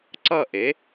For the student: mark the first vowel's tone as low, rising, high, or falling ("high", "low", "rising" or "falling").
falling